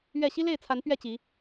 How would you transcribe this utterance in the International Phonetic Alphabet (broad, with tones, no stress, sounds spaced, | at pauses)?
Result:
ɥ ɛ˥˨ ɕ i˦ l e˥˨ ɪ̯ t͡sʰ a˨˦ n p ɥ ɛ˥˨ t͡ɕ i˨˦